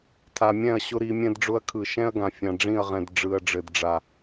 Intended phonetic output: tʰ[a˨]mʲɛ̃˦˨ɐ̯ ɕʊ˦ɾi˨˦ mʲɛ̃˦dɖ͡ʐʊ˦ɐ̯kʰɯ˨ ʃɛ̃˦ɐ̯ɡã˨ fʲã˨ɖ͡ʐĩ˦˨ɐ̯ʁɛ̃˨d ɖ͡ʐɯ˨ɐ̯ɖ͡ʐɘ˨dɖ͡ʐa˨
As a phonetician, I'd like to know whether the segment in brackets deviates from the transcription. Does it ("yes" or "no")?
no